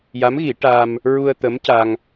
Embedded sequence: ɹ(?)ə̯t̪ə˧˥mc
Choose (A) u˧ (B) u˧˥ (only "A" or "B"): A